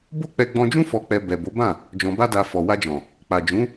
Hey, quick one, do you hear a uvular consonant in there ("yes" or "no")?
no